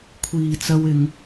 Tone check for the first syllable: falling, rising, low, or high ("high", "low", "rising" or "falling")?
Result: low